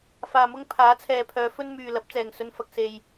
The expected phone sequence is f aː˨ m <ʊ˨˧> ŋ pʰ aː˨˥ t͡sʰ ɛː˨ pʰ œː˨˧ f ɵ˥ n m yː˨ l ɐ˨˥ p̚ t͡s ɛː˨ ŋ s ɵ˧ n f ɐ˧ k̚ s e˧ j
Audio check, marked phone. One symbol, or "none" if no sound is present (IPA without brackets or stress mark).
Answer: ʊ˥